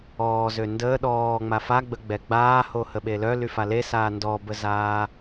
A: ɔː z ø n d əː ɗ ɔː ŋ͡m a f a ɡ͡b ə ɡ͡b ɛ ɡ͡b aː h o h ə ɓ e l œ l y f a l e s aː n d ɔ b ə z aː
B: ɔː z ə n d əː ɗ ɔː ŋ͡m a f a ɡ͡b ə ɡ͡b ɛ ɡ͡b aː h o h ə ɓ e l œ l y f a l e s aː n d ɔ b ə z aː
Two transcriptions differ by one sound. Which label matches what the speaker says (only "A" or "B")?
A